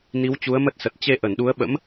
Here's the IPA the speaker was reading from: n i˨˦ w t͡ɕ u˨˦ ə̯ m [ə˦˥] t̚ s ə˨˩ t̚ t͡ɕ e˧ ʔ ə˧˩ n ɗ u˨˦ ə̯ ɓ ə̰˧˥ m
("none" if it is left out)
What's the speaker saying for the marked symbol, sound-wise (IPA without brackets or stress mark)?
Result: ə˦˥